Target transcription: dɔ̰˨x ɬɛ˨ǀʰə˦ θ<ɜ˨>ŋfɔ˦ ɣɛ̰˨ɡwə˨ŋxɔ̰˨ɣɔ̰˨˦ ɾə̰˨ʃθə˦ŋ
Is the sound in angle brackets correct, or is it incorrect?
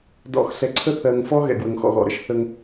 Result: correct